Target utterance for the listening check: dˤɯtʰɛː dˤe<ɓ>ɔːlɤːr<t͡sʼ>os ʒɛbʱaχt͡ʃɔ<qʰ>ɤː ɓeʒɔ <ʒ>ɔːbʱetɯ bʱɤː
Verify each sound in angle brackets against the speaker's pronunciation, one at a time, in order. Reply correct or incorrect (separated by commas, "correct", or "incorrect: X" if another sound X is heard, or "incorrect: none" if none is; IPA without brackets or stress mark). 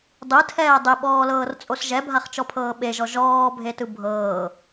correct, correct, incorrect: pʰ, correct